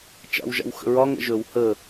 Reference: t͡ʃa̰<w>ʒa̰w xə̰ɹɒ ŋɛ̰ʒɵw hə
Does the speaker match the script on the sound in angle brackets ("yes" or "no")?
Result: yes